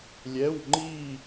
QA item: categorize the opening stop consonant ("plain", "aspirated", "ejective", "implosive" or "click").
click